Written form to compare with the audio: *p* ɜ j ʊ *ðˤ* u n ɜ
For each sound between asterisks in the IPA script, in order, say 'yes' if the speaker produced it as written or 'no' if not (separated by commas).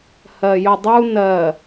no, no